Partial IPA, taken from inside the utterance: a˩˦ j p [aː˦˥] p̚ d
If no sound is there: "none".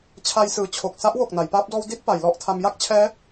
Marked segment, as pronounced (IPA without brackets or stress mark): aː˦˥